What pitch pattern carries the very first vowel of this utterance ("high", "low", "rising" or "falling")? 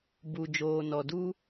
low